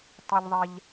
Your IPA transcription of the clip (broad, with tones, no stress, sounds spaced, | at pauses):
tˤ i˧ ʎ ðˤ ɛ˧ ʎ